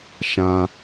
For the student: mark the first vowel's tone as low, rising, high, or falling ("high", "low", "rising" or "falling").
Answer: low